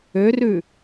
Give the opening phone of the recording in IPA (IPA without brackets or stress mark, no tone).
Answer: ø